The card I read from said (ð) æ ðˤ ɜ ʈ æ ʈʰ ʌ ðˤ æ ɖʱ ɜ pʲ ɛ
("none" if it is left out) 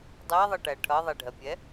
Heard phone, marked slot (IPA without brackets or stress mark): dˤ